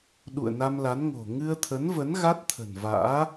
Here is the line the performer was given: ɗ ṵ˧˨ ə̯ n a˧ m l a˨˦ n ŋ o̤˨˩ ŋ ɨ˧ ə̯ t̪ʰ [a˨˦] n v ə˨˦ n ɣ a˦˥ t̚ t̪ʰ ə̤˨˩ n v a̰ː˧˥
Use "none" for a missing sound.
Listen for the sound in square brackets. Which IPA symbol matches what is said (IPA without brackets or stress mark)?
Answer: ə˨˦